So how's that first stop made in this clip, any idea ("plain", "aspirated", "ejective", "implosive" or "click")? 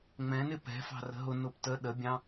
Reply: plain